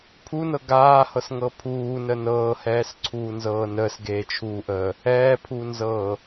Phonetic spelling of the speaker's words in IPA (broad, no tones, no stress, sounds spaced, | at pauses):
pʰ u n ɤ ɡ aː h ɤ s ŋ ɤ pʰ uː n ə n ɤː h ɛː s ǀʰ uː n z ɤː n əː s ɡ eː t͡ʃʰ uː ʔ əː | ɛː pʰ u n z ɤː